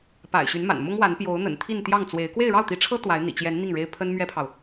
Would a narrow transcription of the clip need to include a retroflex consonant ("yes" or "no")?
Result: yes